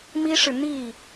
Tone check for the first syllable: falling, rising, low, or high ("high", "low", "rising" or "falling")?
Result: high